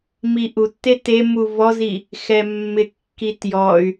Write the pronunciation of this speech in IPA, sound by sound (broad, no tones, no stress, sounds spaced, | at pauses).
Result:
m i ʔ u tː e t e m u v ɔ z i | x ɛ mː ɪ kː i t j ɔ y̯